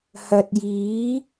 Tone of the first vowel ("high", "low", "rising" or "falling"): low